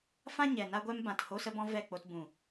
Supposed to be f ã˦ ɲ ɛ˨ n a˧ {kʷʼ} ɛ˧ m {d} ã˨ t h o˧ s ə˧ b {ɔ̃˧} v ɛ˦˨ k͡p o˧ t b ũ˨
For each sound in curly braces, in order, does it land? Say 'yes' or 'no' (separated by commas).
no, no, yes